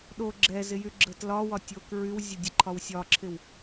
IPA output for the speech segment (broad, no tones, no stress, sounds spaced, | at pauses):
ɗ o ɡ͡ǁ ɛ z ɪ j y ɡ͡ǁ ə t l ɒ w ɒ tʲ o k ɹ y w zʲ ə dʲ ə ǃʰ ɒ w sʲ ɒ ǁʰ ɪ w